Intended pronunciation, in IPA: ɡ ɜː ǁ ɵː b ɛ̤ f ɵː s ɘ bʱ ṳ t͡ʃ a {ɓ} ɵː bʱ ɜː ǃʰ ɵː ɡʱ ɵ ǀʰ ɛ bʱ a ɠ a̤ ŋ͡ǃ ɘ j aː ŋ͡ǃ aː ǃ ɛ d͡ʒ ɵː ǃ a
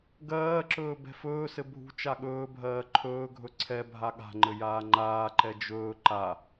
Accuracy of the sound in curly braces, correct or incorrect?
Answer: incorrect: ɠ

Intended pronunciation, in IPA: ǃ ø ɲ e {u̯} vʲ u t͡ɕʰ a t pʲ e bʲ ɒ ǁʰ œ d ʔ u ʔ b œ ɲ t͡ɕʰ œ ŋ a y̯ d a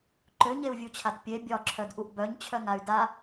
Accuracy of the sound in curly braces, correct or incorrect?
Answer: correct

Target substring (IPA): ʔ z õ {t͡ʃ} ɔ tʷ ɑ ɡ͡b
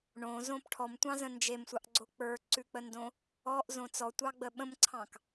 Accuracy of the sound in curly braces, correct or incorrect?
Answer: incorrect: t͡s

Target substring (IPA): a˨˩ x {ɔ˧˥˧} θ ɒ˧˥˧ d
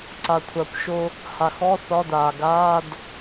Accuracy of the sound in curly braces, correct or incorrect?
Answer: correct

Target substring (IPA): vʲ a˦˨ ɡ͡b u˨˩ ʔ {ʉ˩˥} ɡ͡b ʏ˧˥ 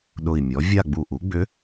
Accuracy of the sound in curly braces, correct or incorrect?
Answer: incorrect: u˩˥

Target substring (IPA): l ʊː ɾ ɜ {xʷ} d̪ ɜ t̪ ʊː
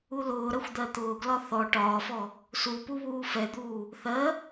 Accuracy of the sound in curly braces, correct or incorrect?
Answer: correct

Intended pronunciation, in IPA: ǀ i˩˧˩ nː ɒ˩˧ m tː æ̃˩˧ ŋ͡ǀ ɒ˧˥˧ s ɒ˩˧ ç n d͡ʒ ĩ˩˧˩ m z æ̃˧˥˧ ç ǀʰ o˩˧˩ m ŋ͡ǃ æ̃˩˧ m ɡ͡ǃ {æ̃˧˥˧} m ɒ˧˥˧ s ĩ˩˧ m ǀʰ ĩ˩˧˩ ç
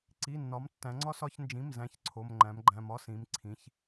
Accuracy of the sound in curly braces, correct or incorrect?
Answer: incorrect: æ̃˩˧˩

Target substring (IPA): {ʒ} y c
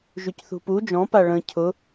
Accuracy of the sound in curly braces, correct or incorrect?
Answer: correct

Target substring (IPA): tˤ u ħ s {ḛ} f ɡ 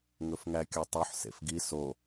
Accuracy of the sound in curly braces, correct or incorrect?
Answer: correct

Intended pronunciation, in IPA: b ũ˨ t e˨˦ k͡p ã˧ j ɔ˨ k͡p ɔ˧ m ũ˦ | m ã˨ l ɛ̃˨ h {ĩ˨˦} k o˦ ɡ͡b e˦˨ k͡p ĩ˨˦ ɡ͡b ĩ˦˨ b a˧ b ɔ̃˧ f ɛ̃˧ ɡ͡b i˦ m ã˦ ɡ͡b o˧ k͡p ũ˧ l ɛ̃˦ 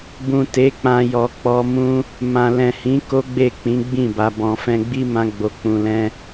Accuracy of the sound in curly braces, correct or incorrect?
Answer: correct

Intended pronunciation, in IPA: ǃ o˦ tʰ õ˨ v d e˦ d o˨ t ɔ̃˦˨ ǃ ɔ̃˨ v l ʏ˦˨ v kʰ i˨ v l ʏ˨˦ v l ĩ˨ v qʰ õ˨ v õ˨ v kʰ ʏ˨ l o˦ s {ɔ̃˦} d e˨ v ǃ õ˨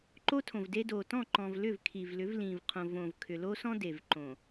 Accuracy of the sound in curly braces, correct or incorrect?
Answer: correct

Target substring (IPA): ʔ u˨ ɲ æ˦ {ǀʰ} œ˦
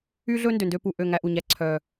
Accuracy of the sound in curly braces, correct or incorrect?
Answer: correct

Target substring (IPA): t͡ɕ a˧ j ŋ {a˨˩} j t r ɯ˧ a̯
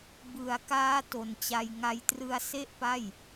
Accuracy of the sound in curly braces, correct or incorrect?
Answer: incorrect: a˦˥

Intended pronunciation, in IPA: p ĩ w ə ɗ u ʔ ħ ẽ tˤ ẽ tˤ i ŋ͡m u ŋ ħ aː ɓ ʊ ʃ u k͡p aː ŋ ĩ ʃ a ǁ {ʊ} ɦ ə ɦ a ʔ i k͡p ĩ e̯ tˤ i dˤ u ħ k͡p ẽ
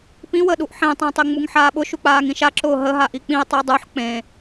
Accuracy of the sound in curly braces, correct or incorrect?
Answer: incorrect: ʊː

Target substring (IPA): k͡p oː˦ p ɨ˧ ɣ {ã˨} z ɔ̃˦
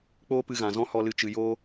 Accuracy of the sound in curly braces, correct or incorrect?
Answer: correct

